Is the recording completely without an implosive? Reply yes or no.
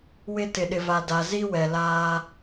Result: no